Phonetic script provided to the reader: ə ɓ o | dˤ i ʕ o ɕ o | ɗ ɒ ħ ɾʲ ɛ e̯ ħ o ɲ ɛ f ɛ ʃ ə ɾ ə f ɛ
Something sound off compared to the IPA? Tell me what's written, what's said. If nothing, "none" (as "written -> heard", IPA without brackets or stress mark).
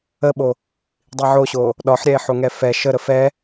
ɲ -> ŋ